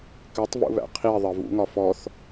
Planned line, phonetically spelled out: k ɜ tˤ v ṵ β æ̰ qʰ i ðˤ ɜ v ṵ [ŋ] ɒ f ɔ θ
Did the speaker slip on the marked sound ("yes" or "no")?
no